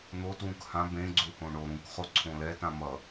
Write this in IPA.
n̪ o t w ũ k h ã b ẽ ɡ͡ǀ u h õ ɳ o ɾ ũ k χ o ǀʰ õ l ɛ t ã m ʌ

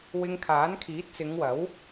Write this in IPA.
w ɪ˧ ŋ kʰ aː˨˥ n kʰ iː˨˥ t̚ t͡s ɪ˨˧ ŋ w ɐ˨˥ w

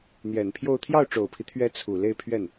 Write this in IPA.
n̪ j ɛ˨˩ n pʰ j o˥˧ ʊ̯ t̪ʰ j ɑ˥˩ ʊ̯ ʈ͡ʂ o˨˩ ʊ̯ pʰ i˦ t̪ʰ ɥ ɛ˧˥ t͡sʰ u˨˩ l e˥˧ ɪ̯ pʰ ɥ ɛ˥˩ n

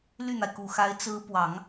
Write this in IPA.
l y˥˩ n̪ a˩ ɪ̯ k u˨˩ x a˧˥ ɪ̯ t͡s ɹ̩˧˥ p w ɑ˨˩˦ ŋ

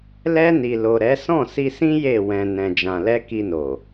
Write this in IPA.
l ɛ˧ n i˨ l o˨ ɾ ɛ˨˦ s ɔ̃˦˨ s i˧ s ĩ˦ j e˦˨ w ɛ̃˨ n ɛ̃˨ d͡ʒ ã˨ l ɛ˧ k i˧ n o˨

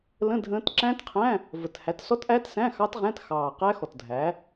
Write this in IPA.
l ə̃˧˥˧ dʱ ə̃ː˦˥ t ǁ æ̃˦˥ t qʰ æ̃˧˥˧ | v ə˨˩ t h æ˨˥ t s ɔ˦˥ t ʔ æ˦˥ t s æ̃˧˥˧ x ɑ˦˥ t ʁ æ̃˧˥˧ t x ɑː˨˩ q æ˦˥ x ɔ˨˩ t dʱ æ˨˥

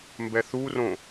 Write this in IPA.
m b ɛ θ u r õ

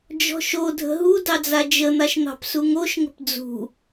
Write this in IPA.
d͡ʒ ɔ̤ ʃ o dʱ ə̤ ɦ u d ɑ d͡z a d͡ʒ ə n̪ a ʃ n̪ ɑ̤ p s u ŋ o ʃ ŋ ə̤ p d͡z ṳ

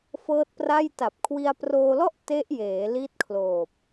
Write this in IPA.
f ɤː˦˥ t̚ p r a˥˩ j t a˨˩ p̚ kʰ w i˧ a̯ p r oː˧ l ɔ˥˩ ʔ t e˦˥ ʔ j eː˩˦ l i˦˥ t̚ kʰ l oː˨˩ p̚

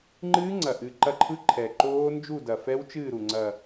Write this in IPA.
ŋ͡ǃ ɨː˦˥ ŋ͡ǀ ɐ˨˩ ʔ ɨ˨˩ ǃ ɐ˦˨ ǃʰ ɯ˦˥ ǃʰ ɛ˨˩ ǃ oː˦˥ n d͡ʒ u˦˨ d ɐ˨˩ f ɛ˦˥ w t͡ʃ ɨː˦˨ ɾ u˨˩ ŋ͡ǀ ɐ˨˩

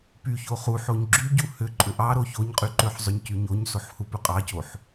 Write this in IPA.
p y ç o χ u ħ o ɲ ɡ͡ǁ y ɟ u h ʏ ǃʼ ʏ ʔ ɑ ɾ o ç o ɲ qʼ y ǃ ʏ ħ zˤ ʏ ɲ c y ɲ o ɲ s o ħ h u p ʏ qʼ ɑ c o ħ

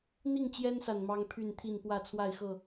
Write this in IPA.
n̪ i˥˨ ŋ t͡ɕ j ɛ˦ n s a˨ n m ɑ˦ ŋ pʰ y˥˨ n t̪ʰ i˥˨ n p w ä˥˨ t͡sʰ w a˥˨ ɪ̯ x ɤ˥˨

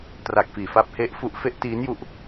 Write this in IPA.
t r a˨˩ k̚ f iː˨˩ f a˦˥ p̚ h e˦˥ ʔ f u˦˥ ʔ f e˦˥ ʔ t iː˦˥ n j u˦˥ ʔ

